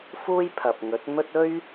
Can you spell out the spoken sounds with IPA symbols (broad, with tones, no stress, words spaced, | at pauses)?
fuː˥jpʰɐ˨p̚ŋɵ˨˥t̚mɵ˥t̚ ɵ˥ɥ